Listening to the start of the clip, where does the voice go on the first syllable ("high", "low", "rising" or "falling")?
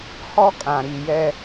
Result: high